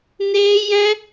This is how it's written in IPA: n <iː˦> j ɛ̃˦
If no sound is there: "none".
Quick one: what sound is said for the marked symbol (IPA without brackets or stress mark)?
eː˦